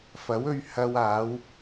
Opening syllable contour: rising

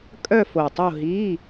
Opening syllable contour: falling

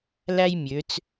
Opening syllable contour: high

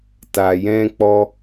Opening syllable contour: low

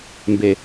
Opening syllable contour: low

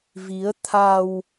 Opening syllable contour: rising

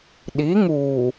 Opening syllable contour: rising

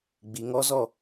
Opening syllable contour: low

